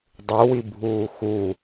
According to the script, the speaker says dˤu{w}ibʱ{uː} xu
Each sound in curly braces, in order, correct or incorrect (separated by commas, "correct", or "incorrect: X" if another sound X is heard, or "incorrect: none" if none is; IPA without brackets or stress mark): correct, correct